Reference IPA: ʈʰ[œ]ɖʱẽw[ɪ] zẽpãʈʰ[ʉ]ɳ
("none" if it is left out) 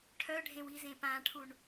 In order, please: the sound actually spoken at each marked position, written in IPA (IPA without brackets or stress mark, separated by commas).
œ, i, u